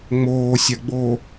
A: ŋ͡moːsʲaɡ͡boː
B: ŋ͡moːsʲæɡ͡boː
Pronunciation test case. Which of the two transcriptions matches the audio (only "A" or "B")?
A